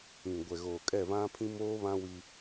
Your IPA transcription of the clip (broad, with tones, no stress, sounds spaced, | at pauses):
ĩ˨ ɡʷ ɛ˨ ɣ oː˨ kʼ ɛ˦˨ v ã˦ pʰ ĩ˦ m oː˦ β ã˦ w i˦